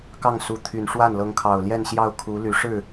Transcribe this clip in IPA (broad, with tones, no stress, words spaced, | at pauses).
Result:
kɑ˥˩ŋsu˧˥t̪ʰy˨˩n ʂwa˥˩n lɤ˧˥ŋkʰɑ˨˩ʊ̯ ljɛ˥˧nɕjɑ˥˩ʊ̯kʰu˧˥ly˧˥ ʂɻ̩˥˩